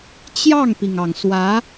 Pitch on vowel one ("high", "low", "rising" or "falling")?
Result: falling